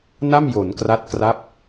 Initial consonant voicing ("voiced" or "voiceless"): voiced